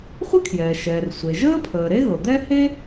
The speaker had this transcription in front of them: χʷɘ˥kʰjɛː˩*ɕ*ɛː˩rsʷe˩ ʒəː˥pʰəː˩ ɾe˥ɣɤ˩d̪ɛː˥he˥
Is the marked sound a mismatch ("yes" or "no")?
yes